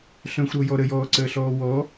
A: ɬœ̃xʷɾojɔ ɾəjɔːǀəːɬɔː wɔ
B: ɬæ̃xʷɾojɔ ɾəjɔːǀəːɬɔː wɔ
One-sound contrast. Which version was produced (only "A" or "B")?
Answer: A